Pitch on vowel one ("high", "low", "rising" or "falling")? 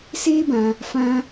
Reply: high